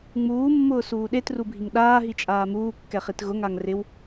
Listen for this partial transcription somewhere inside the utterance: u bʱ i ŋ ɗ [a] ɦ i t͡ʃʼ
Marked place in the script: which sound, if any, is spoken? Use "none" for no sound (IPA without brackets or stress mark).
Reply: aː